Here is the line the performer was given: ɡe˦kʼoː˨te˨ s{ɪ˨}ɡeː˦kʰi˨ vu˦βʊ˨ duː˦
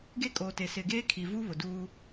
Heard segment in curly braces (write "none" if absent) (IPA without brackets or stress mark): ɪ˨